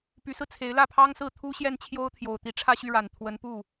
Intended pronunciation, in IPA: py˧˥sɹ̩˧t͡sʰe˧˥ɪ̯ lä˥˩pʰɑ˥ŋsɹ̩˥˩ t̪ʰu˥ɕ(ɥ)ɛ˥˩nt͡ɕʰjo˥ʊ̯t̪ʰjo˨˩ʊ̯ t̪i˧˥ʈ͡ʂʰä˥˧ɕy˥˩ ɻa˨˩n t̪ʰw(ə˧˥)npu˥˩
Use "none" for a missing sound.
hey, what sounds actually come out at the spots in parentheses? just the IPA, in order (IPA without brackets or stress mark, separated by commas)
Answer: j, ə˧˥